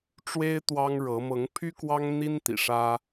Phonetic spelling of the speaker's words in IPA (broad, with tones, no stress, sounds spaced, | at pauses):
ʈ͡ʂ w e˦ ɪ̯ t̪ w ɑ˦ ŋ ɻ ɤ˨˦ m ɤ˨˦ ŋ pʰ y˦ k w ɑ˦ ŋ n̪ i˦ n t̪ ḭ˨˩ ʂ ä˦